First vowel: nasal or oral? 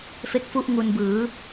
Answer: oral